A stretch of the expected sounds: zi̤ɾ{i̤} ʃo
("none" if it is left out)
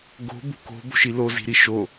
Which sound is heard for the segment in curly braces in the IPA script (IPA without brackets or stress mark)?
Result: i